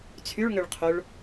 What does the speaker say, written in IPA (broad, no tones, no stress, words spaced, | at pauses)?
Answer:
t͡sʰyɭŋøɭqʰoɭ